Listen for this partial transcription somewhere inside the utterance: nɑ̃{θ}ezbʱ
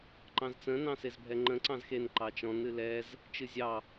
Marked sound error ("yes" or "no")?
yes